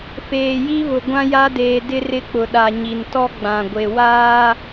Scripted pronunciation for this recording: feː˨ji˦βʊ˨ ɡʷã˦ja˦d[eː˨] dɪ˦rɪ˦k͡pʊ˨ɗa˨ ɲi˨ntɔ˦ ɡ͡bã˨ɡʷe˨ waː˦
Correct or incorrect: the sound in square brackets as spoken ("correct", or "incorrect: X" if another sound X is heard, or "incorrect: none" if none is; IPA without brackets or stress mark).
correct